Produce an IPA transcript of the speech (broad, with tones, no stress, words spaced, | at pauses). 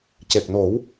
ce˨˩k̚no˨˩˦w